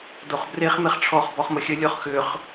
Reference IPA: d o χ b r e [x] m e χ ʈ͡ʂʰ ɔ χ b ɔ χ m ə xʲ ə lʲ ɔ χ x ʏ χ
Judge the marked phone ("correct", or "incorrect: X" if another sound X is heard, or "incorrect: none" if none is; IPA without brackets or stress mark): incorrect: χ